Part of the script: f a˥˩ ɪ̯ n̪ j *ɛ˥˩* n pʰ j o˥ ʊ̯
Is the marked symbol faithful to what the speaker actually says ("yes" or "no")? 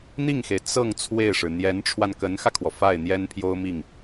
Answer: no